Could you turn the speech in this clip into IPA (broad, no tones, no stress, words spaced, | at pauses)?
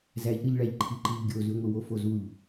zæʎɾɯʎɭæʎǃʰi ǃiʎɡʲozy ŋʷɯwofozuʎ